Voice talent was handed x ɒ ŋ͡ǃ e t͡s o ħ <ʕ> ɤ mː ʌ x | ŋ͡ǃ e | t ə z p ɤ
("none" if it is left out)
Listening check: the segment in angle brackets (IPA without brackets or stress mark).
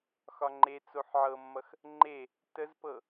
ʕ